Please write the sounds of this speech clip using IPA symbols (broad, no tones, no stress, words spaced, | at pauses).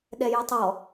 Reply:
ɗɛjotˤɔ